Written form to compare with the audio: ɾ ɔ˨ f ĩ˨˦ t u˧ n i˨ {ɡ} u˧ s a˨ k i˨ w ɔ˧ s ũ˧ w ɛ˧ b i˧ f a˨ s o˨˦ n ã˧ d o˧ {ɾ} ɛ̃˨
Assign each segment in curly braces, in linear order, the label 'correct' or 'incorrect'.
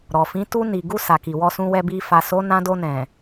correct, incorrect: n

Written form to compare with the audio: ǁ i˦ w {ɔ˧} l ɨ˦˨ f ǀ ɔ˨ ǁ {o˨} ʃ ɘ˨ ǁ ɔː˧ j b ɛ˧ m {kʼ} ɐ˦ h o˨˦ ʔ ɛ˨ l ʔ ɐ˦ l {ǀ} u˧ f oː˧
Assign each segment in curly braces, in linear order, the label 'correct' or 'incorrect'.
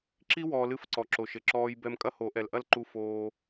incorrect: ɔː˧, correct, correct, incorrect: ǃ

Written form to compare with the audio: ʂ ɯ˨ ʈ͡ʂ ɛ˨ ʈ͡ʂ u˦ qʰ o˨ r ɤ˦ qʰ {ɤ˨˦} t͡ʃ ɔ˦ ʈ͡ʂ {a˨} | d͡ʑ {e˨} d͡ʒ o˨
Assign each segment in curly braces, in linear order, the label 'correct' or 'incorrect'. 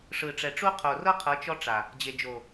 correct, correct, correct

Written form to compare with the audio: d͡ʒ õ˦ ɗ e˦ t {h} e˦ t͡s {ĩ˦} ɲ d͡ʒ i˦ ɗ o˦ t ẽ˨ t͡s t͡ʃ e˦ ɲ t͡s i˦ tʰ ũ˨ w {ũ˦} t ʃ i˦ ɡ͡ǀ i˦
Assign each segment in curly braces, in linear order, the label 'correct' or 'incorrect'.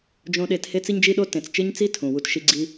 correct, incorrect: i˦, incorrect: u˦

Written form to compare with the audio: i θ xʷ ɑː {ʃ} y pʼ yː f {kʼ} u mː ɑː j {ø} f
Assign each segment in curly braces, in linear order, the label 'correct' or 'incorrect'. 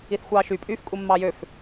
correct, correct, correct

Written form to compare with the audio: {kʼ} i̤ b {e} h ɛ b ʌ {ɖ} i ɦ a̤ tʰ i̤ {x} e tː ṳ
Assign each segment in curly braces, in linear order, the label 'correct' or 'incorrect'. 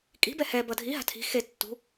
correct, incorrect: ɛ, incorrect: dʱ, correct

